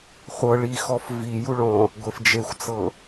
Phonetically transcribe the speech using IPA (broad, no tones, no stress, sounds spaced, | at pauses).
χʷ ɤ ɭ i x ɔ f v i j u ɭ ɔ̃ | ɡʷ e f d͡ʒ e xʷ t͡s ɤ